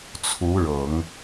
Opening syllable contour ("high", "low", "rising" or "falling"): rising